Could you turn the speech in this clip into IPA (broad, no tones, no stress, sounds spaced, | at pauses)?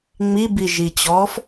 ŋ͡m i b i ʒ i t͡ɕ ɔː f